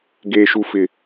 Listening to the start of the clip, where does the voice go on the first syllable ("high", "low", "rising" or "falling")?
low